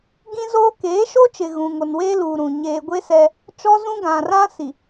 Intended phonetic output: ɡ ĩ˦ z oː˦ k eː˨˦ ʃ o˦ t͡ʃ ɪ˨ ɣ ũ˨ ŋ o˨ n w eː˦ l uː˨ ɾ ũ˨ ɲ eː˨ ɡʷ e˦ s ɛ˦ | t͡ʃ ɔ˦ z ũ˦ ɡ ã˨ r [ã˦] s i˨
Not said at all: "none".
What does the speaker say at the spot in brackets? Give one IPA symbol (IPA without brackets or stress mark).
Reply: ã˦